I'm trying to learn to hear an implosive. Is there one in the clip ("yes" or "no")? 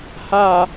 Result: no